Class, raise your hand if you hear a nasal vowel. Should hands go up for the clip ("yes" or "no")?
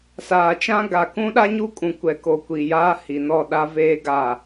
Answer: yes